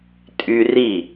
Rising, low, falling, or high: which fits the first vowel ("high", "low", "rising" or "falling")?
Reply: high